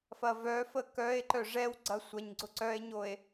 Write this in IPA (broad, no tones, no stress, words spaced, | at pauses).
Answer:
fɐvœfə kœe̯ǃœ ʐɛwɡ͡ǀɐ sʷɐɲɡ͡ǀʊ ǀœe̯ɲoe̯